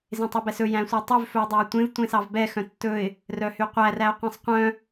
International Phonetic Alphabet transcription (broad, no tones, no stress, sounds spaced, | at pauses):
z ẽ tˤ ø b ɛ s ɵ j æ̃ sʷ ɛ tˤ y v f ɵ ʊ̯ dˤ æ ʊ̯ tʷ ẽ v tʷ ẽ s ɑ v b ɛ x œ̃ tː ɵ ɪ̯ | r œ h y qʷ æ r æ ʊ̯ qʷ ẽ sˤ qʷ œ̃